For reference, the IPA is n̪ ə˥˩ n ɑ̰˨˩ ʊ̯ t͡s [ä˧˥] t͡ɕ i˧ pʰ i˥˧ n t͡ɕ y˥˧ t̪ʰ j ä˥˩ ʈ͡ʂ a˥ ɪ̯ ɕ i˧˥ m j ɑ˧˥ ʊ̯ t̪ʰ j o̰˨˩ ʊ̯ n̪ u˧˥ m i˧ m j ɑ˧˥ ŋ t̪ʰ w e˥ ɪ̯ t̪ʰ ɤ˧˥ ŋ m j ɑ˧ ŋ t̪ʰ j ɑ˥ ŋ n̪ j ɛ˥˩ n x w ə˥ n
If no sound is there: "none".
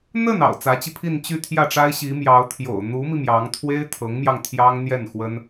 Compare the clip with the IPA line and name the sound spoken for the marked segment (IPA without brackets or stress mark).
ä˧˥